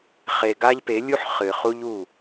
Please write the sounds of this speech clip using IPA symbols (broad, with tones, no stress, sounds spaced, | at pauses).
χ e˨ ɡ a˦ ʎ p e˨˦ lʲ u˦ ħ χ ɨ˨ χ u˦ ʎ u˦˨